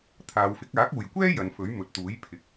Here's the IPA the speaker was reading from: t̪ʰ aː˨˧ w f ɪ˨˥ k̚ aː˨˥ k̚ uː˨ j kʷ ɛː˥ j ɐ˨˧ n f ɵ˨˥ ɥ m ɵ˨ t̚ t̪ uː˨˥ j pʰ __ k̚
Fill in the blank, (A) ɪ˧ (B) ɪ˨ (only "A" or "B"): B